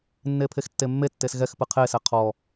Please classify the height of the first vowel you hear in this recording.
mid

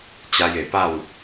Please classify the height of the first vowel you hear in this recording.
low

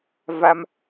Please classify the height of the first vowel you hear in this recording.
low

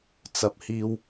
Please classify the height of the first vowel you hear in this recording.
low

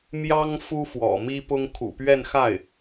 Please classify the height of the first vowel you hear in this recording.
low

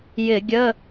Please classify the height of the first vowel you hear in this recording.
high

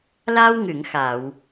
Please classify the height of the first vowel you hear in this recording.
low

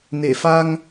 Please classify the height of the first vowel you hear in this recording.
mid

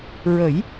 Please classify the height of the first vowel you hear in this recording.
mid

